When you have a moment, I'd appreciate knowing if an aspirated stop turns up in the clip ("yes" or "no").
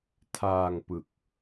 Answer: yes